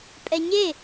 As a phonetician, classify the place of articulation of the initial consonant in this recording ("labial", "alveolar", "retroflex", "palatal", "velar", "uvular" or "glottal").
labial